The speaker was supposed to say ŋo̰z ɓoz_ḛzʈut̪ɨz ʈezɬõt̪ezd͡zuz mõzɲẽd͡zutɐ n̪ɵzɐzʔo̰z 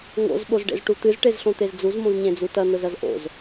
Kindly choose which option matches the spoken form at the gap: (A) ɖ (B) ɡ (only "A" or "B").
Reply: A